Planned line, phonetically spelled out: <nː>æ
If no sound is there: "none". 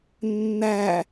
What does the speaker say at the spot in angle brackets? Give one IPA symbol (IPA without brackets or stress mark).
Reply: nː